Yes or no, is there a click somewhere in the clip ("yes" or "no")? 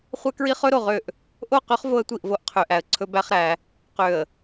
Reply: yes